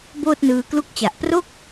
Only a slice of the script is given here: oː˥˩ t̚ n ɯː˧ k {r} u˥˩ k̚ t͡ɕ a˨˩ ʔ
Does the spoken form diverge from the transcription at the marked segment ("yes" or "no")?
yes